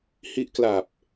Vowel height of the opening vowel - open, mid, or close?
close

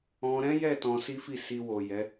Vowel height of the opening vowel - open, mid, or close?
mid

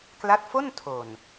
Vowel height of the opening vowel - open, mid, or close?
open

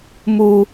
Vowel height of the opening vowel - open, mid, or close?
close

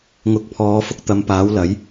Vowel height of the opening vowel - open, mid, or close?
close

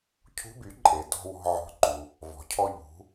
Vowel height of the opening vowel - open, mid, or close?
close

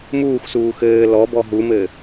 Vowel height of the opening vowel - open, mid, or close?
close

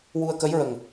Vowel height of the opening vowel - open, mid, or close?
close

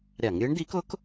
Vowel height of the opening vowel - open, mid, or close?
open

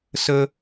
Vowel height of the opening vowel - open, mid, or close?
mid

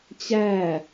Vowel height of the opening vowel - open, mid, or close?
open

